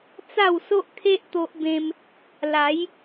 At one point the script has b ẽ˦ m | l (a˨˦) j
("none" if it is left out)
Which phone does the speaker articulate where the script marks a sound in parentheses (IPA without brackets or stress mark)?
a˨˦